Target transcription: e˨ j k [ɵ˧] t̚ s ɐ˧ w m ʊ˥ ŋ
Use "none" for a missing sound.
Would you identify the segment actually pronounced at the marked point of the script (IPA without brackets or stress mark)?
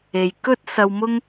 ɵ˥